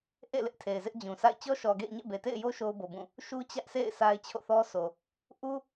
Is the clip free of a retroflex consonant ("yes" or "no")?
yes